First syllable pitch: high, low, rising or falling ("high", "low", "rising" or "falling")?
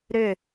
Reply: falling